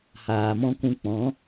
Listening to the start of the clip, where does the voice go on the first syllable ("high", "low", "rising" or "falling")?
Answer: low